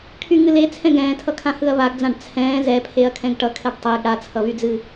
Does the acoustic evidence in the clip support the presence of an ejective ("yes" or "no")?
no